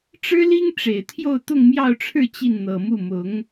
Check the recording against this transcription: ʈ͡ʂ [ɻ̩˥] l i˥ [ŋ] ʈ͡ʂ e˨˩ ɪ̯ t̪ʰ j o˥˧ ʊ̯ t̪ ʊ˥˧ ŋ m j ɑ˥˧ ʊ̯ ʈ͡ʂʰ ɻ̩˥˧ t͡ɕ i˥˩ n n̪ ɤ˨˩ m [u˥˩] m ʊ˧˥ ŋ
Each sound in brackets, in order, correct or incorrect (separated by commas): correct, correct, correct